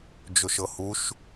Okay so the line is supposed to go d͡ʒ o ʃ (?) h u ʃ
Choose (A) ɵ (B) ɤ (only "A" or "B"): B